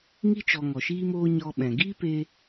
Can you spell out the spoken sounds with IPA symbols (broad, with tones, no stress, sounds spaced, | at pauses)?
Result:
ŋ i˧ t͡ʃ ɔ˨ ŋ ɔ˨ ʃ iː˦ m oː˦ ɲ ɔ˧ ɓ ɛ̃˨ ɡ iː˦ p e˧